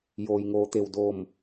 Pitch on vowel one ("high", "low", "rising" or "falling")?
low